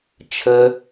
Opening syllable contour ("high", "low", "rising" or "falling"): high